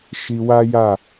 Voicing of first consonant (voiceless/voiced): voiceless